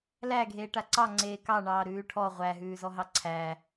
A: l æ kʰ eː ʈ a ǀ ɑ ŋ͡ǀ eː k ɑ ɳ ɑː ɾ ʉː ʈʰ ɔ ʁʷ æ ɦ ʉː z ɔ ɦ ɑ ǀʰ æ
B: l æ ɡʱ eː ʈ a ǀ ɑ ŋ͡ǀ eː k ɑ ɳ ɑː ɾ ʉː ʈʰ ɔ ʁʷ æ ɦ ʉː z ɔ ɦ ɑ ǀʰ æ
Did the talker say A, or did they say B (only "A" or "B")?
B